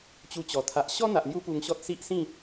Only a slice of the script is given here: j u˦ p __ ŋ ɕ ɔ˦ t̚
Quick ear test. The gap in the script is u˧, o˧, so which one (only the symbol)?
u˧